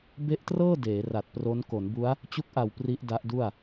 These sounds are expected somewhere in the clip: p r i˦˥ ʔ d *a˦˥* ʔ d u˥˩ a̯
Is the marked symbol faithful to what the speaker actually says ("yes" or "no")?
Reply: yes